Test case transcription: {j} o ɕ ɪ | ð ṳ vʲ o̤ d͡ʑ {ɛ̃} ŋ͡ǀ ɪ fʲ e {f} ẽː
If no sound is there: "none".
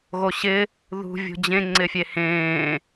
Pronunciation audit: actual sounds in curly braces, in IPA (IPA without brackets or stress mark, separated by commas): ɣ, ẽ, h